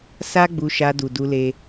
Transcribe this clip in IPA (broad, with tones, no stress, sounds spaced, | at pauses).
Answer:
s a˦ ɡ͡b u˧ ʃ a˧ d u˨ d u˧ l e˦